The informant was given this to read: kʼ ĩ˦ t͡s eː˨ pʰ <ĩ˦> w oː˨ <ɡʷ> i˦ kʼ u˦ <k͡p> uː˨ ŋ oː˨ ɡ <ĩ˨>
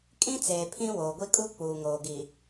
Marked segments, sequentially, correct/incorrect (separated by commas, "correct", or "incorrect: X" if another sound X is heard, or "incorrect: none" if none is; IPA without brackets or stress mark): correct, correct, correct, incorrect: i˨